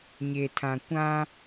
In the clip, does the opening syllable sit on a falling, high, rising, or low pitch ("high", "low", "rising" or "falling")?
low